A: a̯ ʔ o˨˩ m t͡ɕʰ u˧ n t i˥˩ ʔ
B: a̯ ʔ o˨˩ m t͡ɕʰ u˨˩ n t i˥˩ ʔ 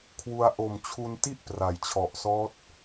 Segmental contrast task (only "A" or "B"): A